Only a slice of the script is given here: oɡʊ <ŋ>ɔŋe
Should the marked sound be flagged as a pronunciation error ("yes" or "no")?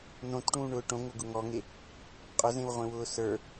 no